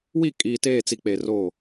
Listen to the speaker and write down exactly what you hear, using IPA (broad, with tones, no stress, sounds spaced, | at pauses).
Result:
w i˦˨ kʼ iː˨ t eː˦˨ t͡s i˨ k͡p e˨ r oː˦˨